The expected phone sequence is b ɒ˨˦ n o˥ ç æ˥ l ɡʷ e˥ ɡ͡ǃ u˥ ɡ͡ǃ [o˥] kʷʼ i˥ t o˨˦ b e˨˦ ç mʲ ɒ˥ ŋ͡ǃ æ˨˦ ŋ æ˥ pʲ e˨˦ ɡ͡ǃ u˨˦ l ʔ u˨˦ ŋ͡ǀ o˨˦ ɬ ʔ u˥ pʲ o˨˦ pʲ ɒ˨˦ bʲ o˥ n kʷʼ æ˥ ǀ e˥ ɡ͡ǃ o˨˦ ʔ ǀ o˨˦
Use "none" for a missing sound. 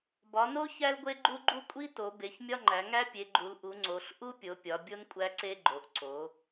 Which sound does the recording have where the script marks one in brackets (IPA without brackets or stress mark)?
u˥